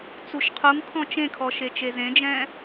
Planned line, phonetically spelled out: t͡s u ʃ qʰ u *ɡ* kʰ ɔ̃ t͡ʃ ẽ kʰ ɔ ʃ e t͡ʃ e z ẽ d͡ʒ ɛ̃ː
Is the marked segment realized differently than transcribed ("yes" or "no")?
yes